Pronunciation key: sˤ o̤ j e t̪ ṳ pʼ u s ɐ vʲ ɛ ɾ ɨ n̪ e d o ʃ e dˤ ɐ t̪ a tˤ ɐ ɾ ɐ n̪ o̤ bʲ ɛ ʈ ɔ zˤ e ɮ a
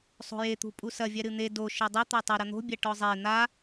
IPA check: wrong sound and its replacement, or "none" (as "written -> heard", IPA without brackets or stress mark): ɮ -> n̪